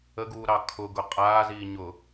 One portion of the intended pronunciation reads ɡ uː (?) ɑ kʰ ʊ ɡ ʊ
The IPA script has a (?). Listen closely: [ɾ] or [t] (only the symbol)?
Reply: ɾ